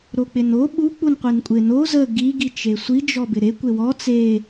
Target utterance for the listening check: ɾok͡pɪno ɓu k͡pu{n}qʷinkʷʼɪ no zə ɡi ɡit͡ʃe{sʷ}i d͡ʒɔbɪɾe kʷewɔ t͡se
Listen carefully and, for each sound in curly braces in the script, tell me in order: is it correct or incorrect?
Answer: correct, correct

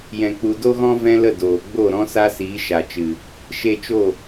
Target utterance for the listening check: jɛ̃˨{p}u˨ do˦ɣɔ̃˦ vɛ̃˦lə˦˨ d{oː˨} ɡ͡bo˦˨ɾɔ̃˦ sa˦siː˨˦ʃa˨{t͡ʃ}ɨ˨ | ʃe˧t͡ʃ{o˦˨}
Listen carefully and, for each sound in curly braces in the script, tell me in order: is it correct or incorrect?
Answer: incorrect, correct, correct, correct

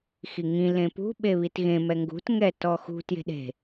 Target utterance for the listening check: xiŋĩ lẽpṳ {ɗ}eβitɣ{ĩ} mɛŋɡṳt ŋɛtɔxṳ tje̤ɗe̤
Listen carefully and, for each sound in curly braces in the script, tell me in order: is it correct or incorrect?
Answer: incorrect, incorrect

